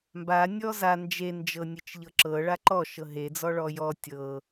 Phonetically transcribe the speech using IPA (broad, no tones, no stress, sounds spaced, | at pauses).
m b a nʲ ɔ z a n d͡ʒ e n d͡ʒ ɤ nʲ e t͡ʃ ʎ ɤ ǁ ɤ ɭ a ǃ ɔ ʃ ɤ ɦ e d͡z ɔ ɭ ɔ j ɔ tʲ ɤ